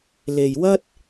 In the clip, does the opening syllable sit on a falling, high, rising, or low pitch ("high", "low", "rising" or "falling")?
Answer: low